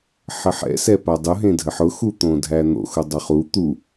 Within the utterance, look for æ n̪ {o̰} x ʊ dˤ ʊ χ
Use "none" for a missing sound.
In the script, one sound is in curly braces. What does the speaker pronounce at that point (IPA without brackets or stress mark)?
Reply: o̰